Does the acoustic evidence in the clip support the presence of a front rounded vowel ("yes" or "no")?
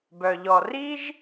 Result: yes